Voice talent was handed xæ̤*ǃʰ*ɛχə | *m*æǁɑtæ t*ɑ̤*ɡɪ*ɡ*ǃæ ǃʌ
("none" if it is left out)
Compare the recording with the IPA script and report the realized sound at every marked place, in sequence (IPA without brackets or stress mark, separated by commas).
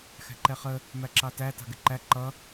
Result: ǃ, m, ɑ̤, none